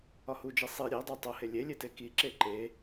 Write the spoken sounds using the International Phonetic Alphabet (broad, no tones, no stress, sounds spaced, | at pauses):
ɒ h u d͡ʒ i sˤ i ɾʲ e dˤ æ tˤ o h e lʲ e lʲ e t e k i ǁ e ǃ e